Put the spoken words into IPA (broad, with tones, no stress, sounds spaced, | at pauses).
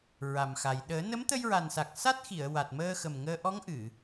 ɹ a˨˩ m x a˨˩ j ɗ əː˨˩˦ n ə˧˥ m t̪ ə˧ j ɹ a˨˩ n s a˨˩ k̚ s a˦˥ t̚ x i˨˩˨ ə̯ w a˨˩ t̚ m əː˧ x ə˨˩ m ŋ əː˧ ʔ ɔ˧˥ ŋ ʔ ɨ˨˩˨